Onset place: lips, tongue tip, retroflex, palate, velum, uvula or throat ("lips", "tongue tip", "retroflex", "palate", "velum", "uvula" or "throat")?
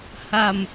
throat